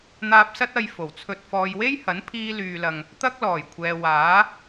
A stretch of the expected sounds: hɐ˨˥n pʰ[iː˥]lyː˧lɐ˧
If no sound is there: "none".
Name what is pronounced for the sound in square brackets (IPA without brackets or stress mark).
iː˥